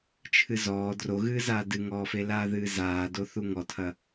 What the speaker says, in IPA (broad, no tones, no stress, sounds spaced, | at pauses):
t͡ʃʰ ɨ z ɔː d r o ɣ ɨː z aː d ɨ ŋ ɔː f e l aː ð ɨː z aː d o θ u ŋ ɔ tʰ ɐ